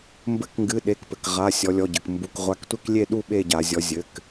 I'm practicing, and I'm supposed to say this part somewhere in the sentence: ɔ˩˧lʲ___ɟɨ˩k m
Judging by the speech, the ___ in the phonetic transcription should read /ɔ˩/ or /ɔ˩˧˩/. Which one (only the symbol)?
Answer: ɔ˩˧˩